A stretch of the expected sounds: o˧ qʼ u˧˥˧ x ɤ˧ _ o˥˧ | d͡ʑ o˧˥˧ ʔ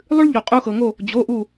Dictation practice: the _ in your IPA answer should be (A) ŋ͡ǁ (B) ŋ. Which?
B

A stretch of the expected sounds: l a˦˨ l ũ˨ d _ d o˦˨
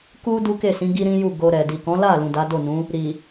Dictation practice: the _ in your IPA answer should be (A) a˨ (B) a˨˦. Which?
B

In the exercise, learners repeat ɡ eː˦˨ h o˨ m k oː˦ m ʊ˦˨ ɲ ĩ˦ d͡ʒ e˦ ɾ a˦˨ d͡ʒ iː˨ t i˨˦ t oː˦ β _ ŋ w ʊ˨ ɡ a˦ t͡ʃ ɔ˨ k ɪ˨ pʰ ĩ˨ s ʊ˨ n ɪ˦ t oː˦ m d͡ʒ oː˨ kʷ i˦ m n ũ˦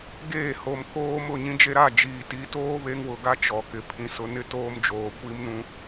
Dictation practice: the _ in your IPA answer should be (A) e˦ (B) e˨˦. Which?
A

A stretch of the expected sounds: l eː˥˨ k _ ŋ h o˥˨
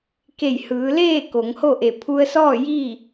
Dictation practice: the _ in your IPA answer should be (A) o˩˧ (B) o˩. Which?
A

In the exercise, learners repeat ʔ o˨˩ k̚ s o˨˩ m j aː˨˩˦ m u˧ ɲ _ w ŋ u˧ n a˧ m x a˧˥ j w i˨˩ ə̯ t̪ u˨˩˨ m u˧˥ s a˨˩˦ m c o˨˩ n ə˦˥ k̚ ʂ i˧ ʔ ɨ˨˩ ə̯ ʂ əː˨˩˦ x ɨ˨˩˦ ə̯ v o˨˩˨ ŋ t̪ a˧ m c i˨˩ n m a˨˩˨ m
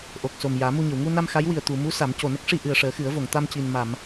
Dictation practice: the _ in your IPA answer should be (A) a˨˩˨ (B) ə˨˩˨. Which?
B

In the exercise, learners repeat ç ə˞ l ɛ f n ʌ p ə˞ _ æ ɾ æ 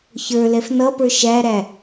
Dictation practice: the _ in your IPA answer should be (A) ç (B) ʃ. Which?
B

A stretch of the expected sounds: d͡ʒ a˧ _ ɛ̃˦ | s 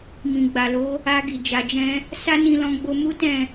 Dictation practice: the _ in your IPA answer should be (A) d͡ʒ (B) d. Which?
A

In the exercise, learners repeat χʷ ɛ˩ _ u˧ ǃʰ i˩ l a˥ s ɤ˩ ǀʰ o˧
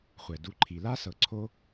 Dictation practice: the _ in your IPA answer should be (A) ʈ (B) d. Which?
B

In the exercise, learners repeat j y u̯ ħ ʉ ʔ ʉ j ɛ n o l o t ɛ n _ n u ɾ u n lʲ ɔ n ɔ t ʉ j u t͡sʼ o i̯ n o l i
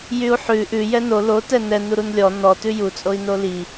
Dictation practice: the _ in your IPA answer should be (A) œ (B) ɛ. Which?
B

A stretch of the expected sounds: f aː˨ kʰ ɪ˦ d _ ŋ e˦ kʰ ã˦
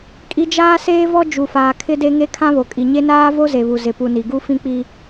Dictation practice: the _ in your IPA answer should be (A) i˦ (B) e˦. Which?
B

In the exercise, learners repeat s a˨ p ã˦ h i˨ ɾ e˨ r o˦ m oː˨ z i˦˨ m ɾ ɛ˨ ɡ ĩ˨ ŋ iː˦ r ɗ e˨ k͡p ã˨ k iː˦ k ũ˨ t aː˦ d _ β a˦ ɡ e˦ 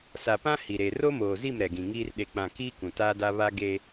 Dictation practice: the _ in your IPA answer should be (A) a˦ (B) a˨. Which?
A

